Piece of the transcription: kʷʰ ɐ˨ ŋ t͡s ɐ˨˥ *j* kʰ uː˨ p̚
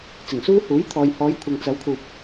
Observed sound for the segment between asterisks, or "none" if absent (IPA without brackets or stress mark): w